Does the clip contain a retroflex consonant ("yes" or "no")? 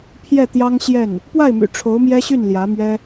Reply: yes